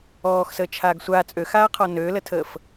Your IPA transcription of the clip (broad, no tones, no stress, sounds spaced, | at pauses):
ɔː x s əː t͡ʃʰ aː ɡ sʷ a t͡sʼ ø x aː qʰ ɔ n øː l ə tʰ əː f